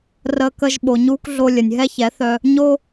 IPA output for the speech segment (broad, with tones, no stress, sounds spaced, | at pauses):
r əː˧ k ə˧ ʒ ɓ o˨ ɲ uː˦ k ɮ o˧ lʲ ə˨ nʲ ɦ ɛ˦ ç ɛ˨˦ θ œ˧ | ɲ o˧